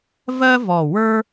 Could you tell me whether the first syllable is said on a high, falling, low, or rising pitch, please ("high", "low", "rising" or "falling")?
high